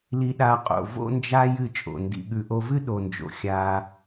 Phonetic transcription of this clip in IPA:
l i˧ ɗ a˧ qʼ o̰˨ v o̰˦ n d͡ʒ a˦ j ɨ˦˨ t͡ʃʼ o̰˨ n d ḭ˨ ɠ ʉ˨ ʔ o˧ v ɨ˦ ɗ o˧ n d͡ʒ o̰˧ xʲ a˧

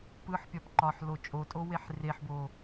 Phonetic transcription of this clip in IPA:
p ɯ ħ pʲ ɒ p ǃ ɒ ħ l o t͡ʃʼ o tʼ o w e ħ r e ħ b o

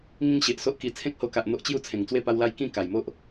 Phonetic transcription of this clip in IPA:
ŋ ĩ˦ ŋ ɕ e˨ ʔ s o˦ ʔ k i˧ t͡sʰ ẽ˦ k̚ h o˧ k a˨ ʔ n̪ o˦ ʔ t͡ɕ j u˥˧ t͡sʰ ẽ˨˩ ŋ t͡s w e˥˧ p a˦ w l a˦ j k ĩ˥˧ k a˨˩ j m o˦ ʔ

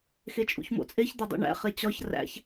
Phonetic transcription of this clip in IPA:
x e t͡ʃʼ ṵ ç m o̰ t͡sʼ e ç d̪ ɒ dˤ ṵ ɳ æ̰ χ e t͡ɕ ɒ ç r æ̰ ç

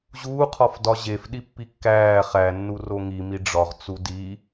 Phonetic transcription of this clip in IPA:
ʑ uː qʰ ɒ f d ɒ ʑ e f ɗ i pː i kː æː χ æ nː u r o ŋ i m i ɖ͡ʐ ɒ ʁ t͡s u d i

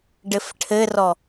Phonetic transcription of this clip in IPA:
ɖ ɘ f ʈʰ ɘ r ɔ

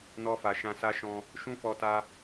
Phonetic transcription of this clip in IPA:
n ɔ˧ f a˨ ʃ ã˧ s a˦ ʃ ɔ̃˧ | ʃ ũ˦ f ɔ˧ t a˧

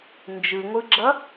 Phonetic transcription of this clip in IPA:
n d͡ʒ ɯ ŋʷ ɯ ɡ͡ǁ ʌ

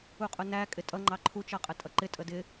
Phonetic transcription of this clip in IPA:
u qʼ ʊ n æ kʼ ɪ tʼ ʌ ŋ͡ǃ ɑ ǃʰ u t͡ʃ ʌ qʼ ə tʼ ʌ ǃ ɪ tʼ ə d ɪ

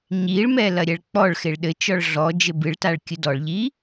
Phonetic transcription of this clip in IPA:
ɲ i ɭ m ɛ l ɐ ɾʲ ɛ ɭ k͡p ɔ ɭ x e ɭ ɗ ɘ t͡ʃ ɔ ɭ ɮ ɔ d͡ʒ ɘ b ɨ ɭ t a ɭ kʲ ɨ d ɔ ɭ ʎ i

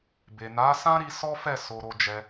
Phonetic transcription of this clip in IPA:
b e˨ n a˨˦ s ã˦ ɾ i˧ s ɔ˦ f ɛ˦˨ s o˧ ɾ o˧ d͡ʒ ɛ˧

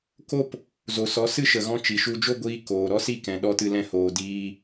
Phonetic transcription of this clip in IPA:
k o˦ p | z o˨ s ɔ˨˦ s ɨ˦ ʃ ə˨ ɣ ɔ̃˧ t͡ʃ i˨ ʃ u˧ d͡ʒ o˦ ɡʷ iː˧ k oː˨ ɾ ɔ˦ s i˦˨ k ɛ̃˨ ɗ ɔ˧ t ɨ˦ l ɛ̃˦ h oː˧ d iː˧

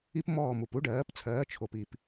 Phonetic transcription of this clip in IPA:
i˥ p m ɔː˥˩ m u˩ p u˥ ɖ ɜː˩˥ p t͡sʰ ɜː˩˥ t͡ʃʰ o˩ p i˩ p

